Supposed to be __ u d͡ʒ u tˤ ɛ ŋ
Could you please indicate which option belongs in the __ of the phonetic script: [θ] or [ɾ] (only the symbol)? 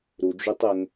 ɾ